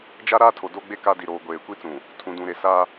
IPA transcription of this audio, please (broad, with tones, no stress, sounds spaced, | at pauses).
d͡ʒ a˦ ɾ aː˦ tʰ o˨ d o˦ ɡ͡b e˦ k a˦ d i˨ ɾ oː˨ ɡʷ eː˨ kʷ i˦ t͡s ũ˨ | tʰ ũ˨ d ũ˨ ɾ e˨ s a˦